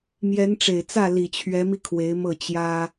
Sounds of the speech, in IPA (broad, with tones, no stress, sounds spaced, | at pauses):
m j ɛ˧˥ n ʈ͡ʂ e˨˩ ɪ̯ t͡s ä˥˩ l i˨˩ t͡ɕʰ ɥ ɛ˧˥ m i˧ kʰ w e˧˥ ɪ̯ m ɤ˥˩ t͡ɕ j ä˥